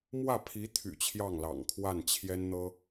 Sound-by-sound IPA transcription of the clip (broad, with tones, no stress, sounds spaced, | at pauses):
m w ä˥˩ pʰ i˧˥ t̪ʰ y̰˨˩ t͡ɕʰ j ɑ˥˩ ŋ l ɑ̰˨˩ ŋ kʰ w a˥˩ n t͡ɕʰ j ɛ˥ n n̪ ɤ˥